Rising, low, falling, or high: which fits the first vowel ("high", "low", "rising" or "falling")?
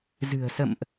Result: low